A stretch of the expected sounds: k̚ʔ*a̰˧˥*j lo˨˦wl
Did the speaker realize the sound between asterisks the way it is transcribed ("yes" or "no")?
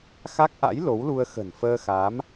yes